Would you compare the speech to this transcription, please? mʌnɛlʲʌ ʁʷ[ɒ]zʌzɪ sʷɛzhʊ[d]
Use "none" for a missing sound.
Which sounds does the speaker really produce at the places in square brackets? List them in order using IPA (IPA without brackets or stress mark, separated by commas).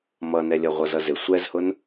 ʌ, n